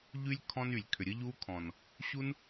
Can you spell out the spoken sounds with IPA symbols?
ʎy˦lʲ kʰɔ̃˦ny˨lʲ kʰʏ˨ɾʲə˦ʎu˦kʰɔ̃˨n | ɕu˦n

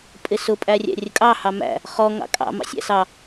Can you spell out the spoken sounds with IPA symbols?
pʼɪsʊ pʼærʲæ̰rʲəkʼɑ hɑmæ̰ | χɔ ŋɑ̰kʼɑ̰ mɑ̰sʲæ̰sɑ

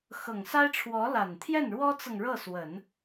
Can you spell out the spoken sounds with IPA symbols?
xɤ˨˩ŋsa˥ɪ̯ʈ͡ʂʰwɔ˧˥ la˨˩nt̪ʰjɛ˥˩nɻwɔ˥t͡sɤ˨ŋ ɻɤ˥˩swə˨˩˦n

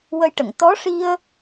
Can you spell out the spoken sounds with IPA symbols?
wə˧jʈə˨˩˨ŋ t̪ɔ˧˥ʂi˧ə̯

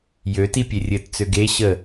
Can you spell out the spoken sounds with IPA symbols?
jøti pʲerʲɘtt͡sø ɡe ɕə

